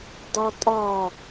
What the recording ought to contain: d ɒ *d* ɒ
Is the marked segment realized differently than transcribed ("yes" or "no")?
yes